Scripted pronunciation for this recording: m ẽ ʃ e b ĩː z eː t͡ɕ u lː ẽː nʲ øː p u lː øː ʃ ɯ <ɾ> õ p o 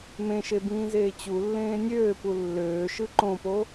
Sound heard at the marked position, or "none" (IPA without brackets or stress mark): ǃ